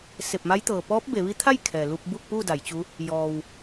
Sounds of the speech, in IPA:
se˧˩p̚ma˧˥j t̪ɤː˩pɔː˧˥p̚be˩˧ʋi˧˥ t̪ʰa˥˨j kʰɛː˩lu˧p̚bu˥˨k̚pu˥˨ da˩˧jt͡ɕu˧˥ | jɔː˩w

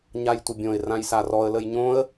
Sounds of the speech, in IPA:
ɲajtʷəbʲõɪ̯ rãjsarɔə̯ ləjɲõə̯

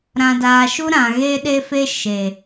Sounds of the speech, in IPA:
ɾã˨daː˨ʃu˦ɾã˨ ɣe˦ɗe˦fe˦ ʃe˨

